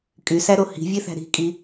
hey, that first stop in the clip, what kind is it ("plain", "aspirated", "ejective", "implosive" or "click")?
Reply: ejective